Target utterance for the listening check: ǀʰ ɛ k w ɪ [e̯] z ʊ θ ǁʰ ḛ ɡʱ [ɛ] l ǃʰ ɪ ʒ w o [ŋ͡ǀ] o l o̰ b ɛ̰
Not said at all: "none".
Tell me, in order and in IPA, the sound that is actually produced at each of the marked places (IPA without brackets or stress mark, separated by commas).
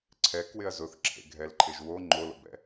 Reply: ɐ̯, ɛ, ŋ͡ǃ